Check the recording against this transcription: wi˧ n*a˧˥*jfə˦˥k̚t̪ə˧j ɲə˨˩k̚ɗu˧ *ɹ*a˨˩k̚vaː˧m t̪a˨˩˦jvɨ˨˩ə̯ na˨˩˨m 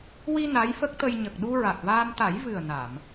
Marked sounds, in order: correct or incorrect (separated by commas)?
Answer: correct, correct